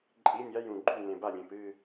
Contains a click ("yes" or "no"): yes